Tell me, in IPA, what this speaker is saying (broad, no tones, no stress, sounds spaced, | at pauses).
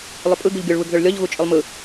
lˠ ʏ pʼ ɯ ɡ u ʎ ɡʲ ʊ ɭ β ɯ ɡ ð ʏ ɭ lʲ ɔ ʎ ɣ u t͡ʃʼ ʏ lˠ m ɯ